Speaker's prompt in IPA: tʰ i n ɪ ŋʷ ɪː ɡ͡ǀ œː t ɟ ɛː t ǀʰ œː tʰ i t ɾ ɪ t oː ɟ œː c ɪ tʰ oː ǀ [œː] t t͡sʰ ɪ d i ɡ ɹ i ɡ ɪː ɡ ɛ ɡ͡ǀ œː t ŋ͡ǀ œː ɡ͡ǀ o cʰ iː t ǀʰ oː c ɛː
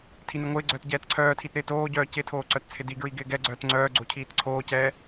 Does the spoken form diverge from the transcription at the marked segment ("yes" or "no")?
yes